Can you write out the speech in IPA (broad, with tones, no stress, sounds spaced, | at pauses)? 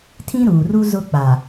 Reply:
tʰ ĩ˦ ɾ uː˨ r u˦ z ʊ˦ k͡p a˨